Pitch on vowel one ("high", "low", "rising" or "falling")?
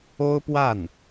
high